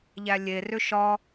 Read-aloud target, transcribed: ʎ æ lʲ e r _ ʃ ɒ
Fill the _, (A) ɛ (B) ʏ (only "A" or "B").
B